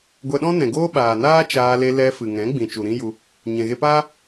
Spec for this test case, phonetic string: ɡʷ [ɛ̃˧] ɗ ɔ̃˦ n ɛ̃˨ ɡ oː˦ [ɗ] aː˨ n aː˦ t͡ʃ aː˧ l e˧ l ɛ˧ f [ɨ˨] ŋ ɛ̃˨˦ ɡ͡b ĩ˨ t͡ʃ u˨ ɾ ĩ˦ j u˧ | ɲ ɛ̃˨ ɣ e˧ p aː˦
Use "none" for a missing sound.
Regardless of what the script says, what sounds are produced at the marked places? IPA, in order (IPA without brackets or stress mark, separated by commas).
ɛ˧, ɓ, ɨ˨